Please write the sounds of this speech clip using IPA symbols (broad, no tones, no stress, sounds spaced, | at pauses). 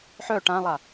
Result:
ħ œ ʈ ã lˠ a